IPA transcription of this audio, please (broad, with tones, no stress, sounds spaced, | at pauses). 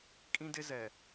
kʼ ĩ˦ d ɪ˦ z ɛ˨